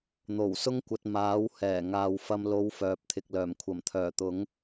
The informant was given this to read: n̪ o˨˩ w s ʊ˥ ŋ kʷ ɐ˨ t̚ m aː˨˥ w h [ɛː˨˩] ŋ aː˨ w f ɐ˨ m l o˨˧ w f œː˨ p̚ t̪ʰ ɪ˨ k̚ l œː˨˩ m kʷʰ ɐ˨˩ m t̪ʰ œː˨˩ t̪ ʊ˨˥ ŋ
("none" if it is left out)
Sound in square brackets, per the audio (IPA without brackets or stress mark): ɛː˨˩